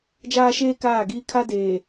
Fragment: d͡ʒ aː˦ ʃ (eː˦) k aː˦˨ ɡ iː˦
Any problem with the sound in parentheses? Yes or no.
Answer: no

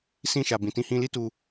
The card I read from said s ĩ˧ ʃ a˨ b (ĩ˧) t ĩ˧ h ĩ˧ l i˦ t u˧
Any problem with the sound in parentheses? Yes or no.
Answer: yes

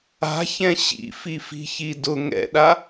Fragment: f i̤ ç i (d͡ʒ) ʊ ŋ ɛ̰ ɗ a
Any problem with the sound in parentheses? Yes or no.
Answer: yes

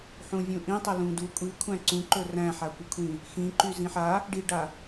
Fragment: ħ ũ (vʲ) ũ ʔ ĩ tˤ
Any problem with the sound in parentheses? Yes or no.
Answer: no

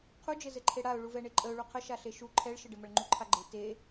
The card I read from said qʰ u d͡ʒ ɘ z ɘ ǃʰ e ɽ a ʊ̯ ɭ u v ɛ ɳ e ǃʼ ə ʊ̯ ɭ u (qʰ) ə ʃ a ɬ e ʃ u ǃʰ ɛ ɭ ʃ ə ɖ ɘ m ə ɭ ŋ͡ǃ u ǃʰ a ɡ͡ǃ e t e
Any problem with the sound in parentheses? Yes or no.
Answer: no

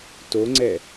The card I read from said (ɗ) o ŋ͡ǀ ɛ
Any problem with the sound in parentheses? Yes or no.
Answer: yes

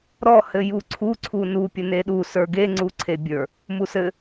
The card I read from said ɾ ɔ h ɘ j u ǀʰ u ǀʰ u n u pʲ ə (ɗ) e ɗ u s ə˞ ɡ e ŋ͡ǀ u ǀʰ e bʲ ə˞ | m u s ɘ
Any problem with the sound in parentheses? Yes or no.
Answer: yes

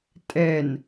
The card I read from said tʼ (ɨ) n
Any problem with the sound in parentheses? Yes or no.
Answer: yes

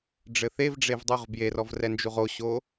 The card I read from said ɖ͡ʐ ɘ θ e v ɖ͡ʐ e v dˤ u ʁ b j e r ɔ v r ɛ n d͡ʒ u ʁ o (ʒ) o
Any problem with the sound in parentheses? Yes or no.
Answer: yes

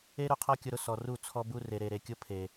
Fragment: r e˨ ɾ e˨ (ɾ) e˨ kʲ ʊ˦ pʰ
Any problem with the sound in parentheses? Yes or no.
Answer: no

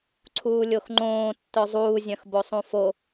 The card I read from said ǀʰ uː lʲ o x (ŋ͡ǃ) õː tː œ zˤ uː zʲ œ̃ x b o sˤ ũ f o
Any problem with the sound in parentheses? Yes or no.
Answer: no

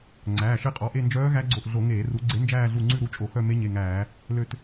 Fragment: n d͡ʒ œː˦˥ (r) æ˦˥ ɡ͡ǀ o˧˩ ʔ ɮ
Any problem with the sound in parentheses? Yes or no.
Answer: yes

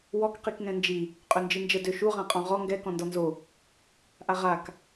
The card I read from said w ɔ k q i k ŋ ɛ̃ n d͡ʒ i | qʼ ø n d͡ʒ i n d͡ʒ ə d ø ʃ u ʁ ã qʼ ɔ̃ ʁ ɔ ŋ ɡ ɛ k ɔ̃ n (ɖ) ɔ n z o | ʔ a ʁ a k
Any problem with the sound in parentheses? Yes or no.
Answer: yes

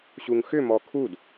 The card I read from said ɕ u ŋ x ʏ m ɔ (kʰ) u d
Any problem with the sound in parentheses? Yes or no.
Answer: no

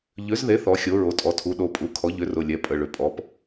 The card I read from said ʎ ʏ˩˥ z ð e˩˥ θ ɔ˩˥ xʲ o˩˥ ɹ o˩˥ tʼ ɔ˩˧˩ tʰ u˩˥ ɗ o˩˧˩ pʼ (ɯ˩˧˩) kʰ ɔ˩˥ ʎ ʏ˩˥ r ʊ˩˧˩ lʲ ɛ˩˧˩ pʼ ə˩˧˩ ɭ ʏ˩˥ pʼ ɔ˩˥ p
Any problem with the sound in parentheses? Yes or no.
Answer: yes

